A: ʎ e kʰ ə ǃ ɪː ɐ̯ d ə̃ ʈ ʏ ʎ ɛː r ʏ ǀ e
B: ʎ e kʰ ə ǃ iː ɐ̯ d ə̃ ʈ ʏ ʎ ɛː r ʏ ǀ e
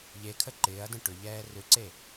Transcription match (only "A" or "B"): A